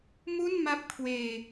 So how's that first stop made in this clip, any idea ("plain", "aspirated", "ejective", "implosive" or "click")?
plain